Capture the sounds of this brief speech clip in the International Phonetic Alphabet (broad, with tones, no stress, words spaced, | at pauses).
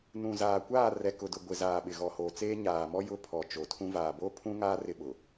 nũ˨zaː˨kʷaː˦˨ rɛ˨kʊ˨dʊ˨ ɡʷɪ˨ zaː˨ɓɪ˨ ɣɔ˨hoː˨t͡seː˦ ɲaː˨mɔ˦ jʊ˦ pʰɔ˨t͡ʃo˨tʰũ˦ vaː˨bo˦ pʰũ˦ŋaː˦ rɪ˦ɓʊ˨